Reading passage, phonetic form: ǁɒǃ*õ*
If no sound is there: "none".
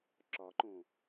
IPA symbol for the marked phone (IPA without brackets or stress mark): õ